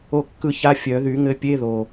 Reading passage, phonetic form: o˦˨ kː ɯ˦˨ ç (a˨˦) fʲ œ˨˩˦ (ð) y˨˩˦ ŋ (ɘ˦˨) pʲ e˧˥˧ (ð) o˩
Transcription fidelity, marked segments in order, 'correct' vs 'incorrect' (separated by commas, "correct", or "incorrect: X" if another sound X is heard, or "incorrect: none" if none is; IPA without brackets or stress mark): incorrect: a˧˥˧, correct, correct, correct